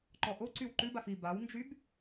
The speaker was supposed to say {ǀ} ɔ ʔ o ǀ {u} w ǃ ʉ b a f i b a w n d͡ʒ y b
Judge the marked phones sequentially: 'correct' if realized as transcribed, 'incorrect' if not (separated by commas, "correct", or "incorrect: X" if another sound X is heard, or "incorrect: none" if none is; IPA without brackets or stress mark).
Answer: incorrect: ǃ, incorrect: y